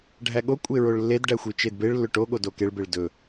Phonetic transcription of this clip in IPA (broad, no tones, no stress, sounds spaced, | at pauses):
ɖʱ æ ɠ o kʷʼ e ɹ o ɭ lː e d ɖ æ xʷ i t͡ʃ e d b e ɭ lː ɵ ʈ o ɠ o d o k e ɭ b e ɭ d ɵ